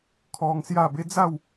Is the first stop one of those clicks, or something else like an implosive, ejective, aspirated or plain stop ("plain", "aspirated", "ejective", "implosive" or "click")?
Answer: aspirated